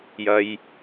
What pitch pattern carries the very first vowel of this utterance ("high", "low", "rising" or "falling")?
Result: low